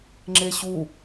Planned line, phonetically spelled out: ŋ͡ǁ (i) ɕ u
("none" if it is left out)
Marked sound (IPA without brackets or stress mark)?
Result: e